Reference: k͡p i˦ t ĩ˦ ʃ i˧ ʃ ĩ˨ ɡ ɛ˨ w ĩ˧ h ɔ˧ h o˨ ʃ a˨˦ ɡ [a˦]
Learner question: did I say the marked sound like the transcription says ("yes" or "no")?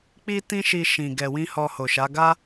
yes